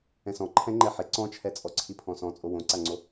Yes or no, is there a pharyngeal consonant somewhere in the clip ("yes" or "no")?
yes